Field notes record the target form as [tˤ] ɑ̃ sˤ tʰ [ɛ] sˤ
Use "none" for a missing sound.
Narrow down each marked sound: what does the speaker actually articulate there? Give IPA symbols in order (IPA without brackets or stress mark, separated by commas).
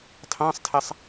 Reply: tʰ, ɛ